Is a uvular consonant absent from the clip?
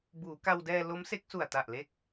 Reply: yes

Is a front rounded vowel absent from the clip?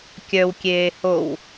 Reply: no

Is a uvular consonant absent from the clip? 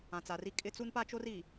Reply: yes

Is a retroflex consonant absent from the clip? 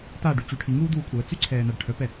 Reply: no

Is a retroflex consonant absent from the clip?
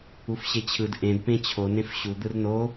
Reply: yes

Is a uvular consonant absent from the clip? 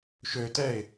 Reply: yes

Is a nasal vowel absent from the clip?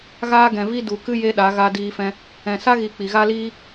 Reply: no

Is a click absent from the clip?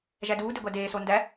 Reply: yes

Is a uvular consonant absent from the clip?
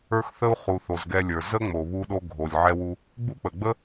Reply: no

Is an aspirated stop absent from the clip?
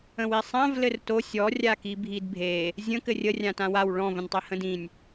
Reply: yes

